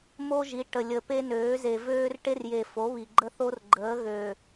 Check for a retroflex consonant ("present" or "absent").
present